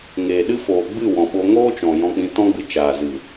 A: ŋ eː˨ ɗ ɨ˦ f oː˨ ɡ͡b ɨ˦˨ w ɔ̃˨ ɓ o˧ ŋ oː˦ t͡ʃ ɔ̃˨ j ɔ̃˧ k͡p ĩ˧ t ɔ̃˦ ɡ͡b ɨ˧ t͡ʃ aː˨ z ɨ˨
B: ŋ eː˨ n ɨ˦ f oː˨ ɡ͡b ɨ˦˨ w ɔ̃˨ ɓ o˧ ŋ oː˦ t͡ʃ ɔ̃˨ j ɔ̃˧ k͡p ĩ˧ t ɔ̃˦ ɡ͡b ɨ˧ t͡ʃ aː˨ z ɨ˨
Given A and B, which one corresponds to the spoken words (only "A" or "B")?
A